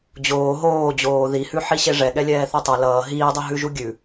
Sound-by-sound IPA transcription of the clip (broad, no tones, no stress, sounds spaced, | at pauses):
d͡ʑ oː ɦ oː d͡ʑ oː ð i h ʉ ħ i ɕ e ʐ ɛ ɠ ɛ lʲ ɛː θ o tˤ ə˞ l ʌː ɦ iː dˤ ʌ ɦ ʉ ʒ u ɡʲ ʉ